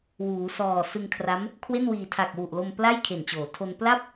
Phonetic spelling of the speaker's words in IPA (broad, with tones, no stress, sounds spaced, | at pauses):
w uː˩˦ s ɔː˨˩ s ɯ˧ ŋ kʰ r a˦˥ m | kʰ w e˥˩ n w iː˨˩ tʰ a˨˩ k̚ w u˨˩ ʔ l o˧ m p l a˥˩ j kʰ e˨˩ n t͡ɕ oː˩˦ tʰ o˧ n p l a˥˩ p̚